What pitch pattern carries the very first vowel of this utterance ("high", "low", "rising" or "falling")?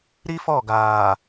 high